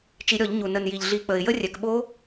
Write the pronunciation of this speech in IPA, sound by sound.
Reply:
t͡ʃ i˧˩˧ ɾʲ ɔ˧˩˧ ʎ ɲ u˨˩ n ə˨˩ n j i˨˩ ʎ ɮ i˧˩˧ k͡p ə˨˩ ɪ̯ j ə˦˥ rʲ ɛ˨˩ k ɓ o˦˥

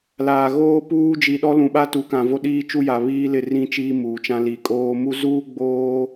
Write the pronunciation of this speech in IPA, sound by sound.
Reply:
l aː˨ ɣ oː˦ p uː˦ d͡ʒ i˨ ɗ ɔ˦ l ũ˨ ɓ a˦ t u˨˦ k ã˨ v o˦ ɗ iː˦ t͡ʃ u˦ j a˨ β iː˦ l ɪ˦˨ r ĩ˦ t͡ʃ iː˦ m uː˨ t͡ʃ ã˦ l i˨ kʼ oː˦ m u˦ z uː˦ ɡ͡b oː˦

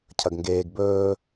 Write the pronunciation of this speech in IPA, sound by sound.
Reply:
cʰ ɐ ɡ ŋ ɡ eː ɡ b ɵː

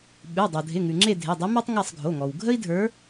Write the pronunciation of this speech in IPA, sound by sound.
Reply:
ɓ ʉ˩˧˩ dˤ o˩ dʱ ɪ˩˧˩ ŋ ʉ˩ ŋ͡ǁ e˦˨ dʱ ɪ˩˧˩ dˤ ɪ˧˥ m a˥ tˤ ŋ a˦˨ sˤ ɡʱ o˩˧˩ ŋ ɔ˩ w ɡʱ ə˥ i̯ dʱ ə˞˧˥

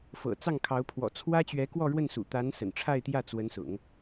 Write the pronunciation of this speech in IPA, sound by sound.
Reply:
f ɤ̰˨˩ t͡s ɑ˥˩ ŋ kʰ ɑ˧˥ ʊ̯ pʰ w ɔ̰˨˩ t͡sʰ w ä˥ t͡ɕ ɥ ɛ˧˥ k w ɔ˥˧ ɻ w ə˥˩ n s ṵ˨˩ t̪ a˧˥ n s ə̰˨˩ n ʈ͡ʂʰ a˥˧ ɪ̯ t̪ j ä˥˩ t͡s w ə˧˥ n s ʊ̰˨˩˦ ŋ

